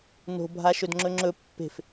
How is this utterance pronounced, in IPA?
no̤ bʱaʃɵdŋ͡ǁɵŋ͡ǁɵ pːe̤f

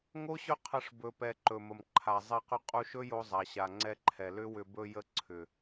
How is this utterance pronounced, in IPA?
ŋo˦ɕɵ˦ qʰə˦˨ʂ bɵ˨pɛ˨ ǃɵ˨mə˨mǃʰa˨ zˤɛ˧qʏ˧ qʼu˧ʃɵ˦ jo˧zˤa˨ɕa˨ŋ͡ǀɛ˧ ǃʰɛ˨lʏ˦wʏ˧ bɵ˧jə˧ ǀʰʏ˨

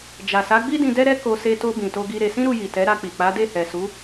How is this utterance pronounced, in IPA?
d͡ʒa˨sa˨˦ɡ͡bi˦dĩ˧ dɛ˦ɾɛ˦ ko˧ se˧to˧ bĩ˨to˧ɡi˧ ɾe˧ sĩ˦ɾu˧ji˨ tɛ˨˦ɾa˧k͡pi˨ k͡pa˨˦de˦˨hɛ˨su˨˦

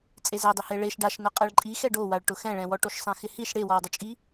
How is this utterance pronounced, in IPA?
t͡sʼezɛdˤɪhe ɭeʃ ɖaʃnʊ qʼɛɭǃʼixɛɖ owaɭ ʈʊxɛ̃ɭɛ̃wɔ ʈoʃsˤɛ̃xɪhiʃ ɽewɔwdˤʊt͡ʃʼi

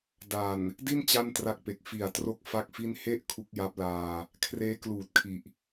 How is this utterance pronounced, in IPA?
da˨˩n | di˥˩n t͡ɕa˥˩ntra˦˥k̚pe˨˩k̚ fi˨˩a̯tro˦˥k̚ fa˥˩k̚fi˥˩n he˥˩ʔ kʰu˦˥k̚ja˦˥p̚laː˧ | kʰreː˦˥kluː˨˩t̚ kʰi˨˩ʔ

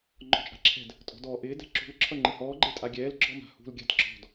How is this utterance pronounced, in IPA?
ŋ͡ǃɔ̤t͡ʃʼa̤ǁʰɛ̤d | tʼɔ̤dɔːʔɪː dɛ̤ǁṳl ǁʰʌŋ͡ǃɪhɔː ɡ͡ǃetʼaɡʲɛːl ɡ͡ǁɔma̤hṳl ɡʲa̤dǁɔ̤d

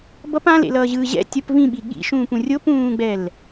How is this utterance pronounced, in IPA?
bʌp ãlḛlʌːʑɯː ʑɛ̰ tʲʌp vĩɓi ɠḭʃũːpũ rʲopũːɡ͡bɛl

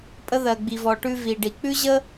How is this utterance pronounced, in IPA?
pʼə˧ðɜ˩ ɡ͡bi˩vɔ˩ʈʉ˧ vi˩ɖi˩ k͡pʉ˥ʑə˥

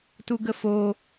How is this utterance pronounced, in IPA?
tuɡəfo

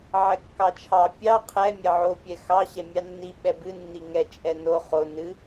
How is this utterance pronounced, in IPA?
ʕɛkːɑt͡ʃʰɑ pʲɑ qʰɛ mʲɛʕo pʲɛxɑ ɕɛmʲɑnːi ɓɛbɨ nːiŋɛ t͡ʃʼɛno χo nɨ

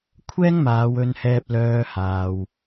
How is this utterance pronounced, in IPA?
kʷʰɛː˥ŋmaː˨˧wɵ˧nhɛː˧p̚ lœː˧ haː˨w

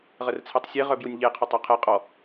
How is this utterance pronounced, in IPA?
ʁərt͡sʰetˤsʲe ʁœbjunʲʎe qʰɔtˤɔqʰe qʼɔ

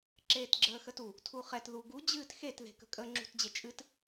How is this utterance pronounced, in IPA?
ǁeːtɡ͡ǁəːxətu | tʰuχɛt ðuɡu d͡ʑɨːtxet ðe̤kə̤kʼə ŋ͡ǁṳtd͡ʑet͡ʃʼɨt

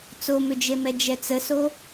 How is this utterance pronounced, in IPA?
t͡somʏd͡ʒemɛ d͡ʒɛt͡səso

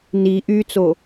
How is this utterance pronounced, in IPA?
ni ʔyt͡so

